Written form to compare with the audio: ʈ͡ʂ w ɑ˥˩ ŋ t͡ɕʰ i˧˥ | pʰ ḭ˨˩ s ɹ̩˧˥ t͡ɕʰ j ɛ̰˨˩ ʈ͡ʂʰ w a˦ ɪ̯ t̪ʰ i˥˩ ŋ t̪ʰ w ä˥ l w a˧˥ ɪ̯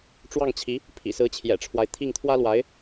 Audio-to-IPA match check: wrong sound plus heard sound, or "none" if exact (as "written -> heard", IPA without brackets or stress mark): none